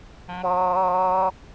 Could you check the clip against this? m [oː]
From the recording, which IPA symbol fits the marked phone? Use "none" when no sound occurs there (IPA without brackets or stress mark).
ɔː